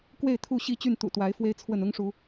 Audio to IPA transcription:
kwe˥˨ɪ̯t̪ʰu˥˨ɕi˥˨ t͡ɕy˥˨nt̪ṵ˨˩t̪wa˨˦ɪ̯ fwe˦ɪ̯t͡sʰwə˥˨n ʊ˦ŋʂu˨˦

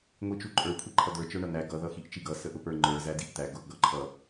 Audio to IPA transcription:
ŋʷit͡ʃuǃʼə˞ kʷʰiǃʰʌd̪ə˞ t͡ʃə˞ɳʌn̪æ ɡʌ ðʌxiʔt͡ʃiɡʌ səʔʊpə˞ ŋ͡ǃə˞ zædiʔt̪æ ɡʊʔ ɡʌǃʰʌ

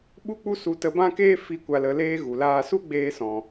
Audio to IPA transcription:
ɓu˧k͡pu˧su˨ tə˧bã˦ keː˦ fi˨˦ kʷa˨lə˨leː˧ ɣu˨laː˧ su˦ɡ͡beː˧sɔ̃˨

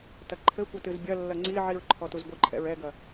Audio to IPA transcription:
tɐǃʰɘkʷɘ tɨzbʲɐlːɐ ŋ͡ǀiʕiɹ ǃʰɔtuzɡʷɨǃʰɛ̰ɹ ɛɡɐ

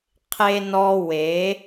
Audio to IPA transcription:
qʰe˧nɔ˧ we˨˦

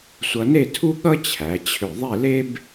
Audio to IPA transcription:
sʷʌ˧ne˥˧tʰu˥ ɠʌ˥t͡ɕʰæ˩˧t͡ɕʰʏ˧˩ ðˤe˥˧le˥b

